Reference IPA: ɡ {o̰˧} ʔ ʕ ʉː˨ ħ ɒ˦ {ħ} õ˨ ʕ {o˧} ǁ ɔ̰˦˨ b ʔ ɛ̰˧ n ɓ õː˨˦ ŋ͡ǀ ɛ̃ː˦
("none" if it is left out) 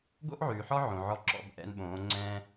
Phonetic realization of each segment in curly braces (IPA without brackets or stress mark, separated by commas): o̰˦, ʕ, ɔ˧